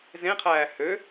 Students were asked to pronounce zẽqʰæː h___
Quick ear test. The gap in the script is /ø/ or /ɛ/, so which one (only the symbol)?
ø